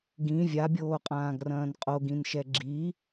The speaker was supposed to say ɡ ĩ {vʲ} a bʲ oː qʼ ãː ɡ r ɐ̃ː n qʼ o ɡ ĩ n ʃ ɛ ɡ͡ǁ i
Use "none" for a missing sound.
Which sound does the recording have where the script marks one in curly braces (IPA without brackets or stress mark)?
vʲ